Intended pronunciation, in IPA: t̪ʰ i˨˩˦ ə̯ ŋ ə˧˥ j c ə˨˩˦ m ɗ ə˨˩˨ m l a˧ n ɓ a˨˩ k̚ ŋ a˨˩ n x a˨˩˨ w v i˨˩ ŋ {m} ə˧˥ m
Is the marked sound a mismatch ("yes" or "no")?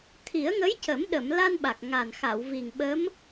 yes